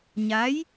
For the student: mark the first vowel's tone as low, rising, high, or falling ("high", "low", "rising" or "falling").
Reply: rising